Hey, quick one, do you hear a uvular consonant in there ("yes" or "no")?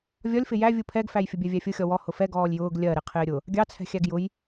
yes